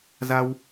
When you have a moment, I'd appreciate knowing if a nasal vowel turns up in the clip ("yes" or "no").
no